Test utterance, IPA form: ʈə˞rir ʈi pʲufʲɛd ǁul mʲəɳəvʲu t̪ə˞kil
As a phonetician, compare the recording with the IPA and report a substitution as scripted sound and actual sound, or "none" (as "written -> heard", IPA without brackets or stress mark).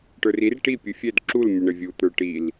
k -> ʈ